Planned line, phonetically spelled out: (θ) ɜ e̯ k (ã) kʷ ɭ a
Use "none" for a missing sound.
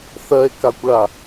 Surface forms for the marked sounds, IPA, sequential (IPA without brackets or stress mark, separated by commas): θ, a